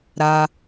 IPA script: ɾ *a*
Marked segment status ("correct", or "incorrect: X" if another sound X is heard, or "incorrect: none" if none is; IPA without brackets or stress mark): correct